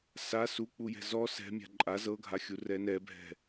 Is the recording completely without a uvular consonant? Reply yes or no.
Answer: yes